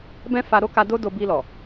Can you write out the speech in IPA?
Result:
bɛ̃˦fa˧ ɾo˦ka˧ do˦do˧ bi˧lɔ˨

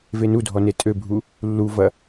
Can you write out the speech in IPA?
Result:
venudʱɔ netʼøbʱu | lːuvɐ

